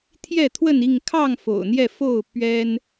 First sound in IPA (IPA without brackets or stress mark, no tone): t̪ʰ